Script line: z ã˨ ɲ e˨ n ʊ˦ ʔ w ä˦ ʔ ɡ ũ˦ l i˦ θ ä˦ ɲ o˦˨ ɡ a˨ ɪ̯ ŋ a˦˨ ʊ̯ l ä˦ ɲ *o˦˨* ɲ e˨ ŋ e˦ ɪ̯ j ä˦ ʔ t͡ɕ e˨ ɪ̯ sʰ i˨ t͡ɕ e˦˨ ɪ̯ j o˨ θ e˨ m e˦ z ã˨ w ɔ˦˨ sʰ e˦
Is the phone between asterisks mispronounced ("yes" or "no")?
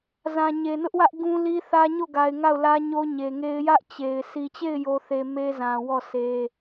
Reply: yes